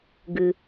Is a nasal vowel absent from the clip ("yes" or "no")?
yes